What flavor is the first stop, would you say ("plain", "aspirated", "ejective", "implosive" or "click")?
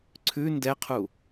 click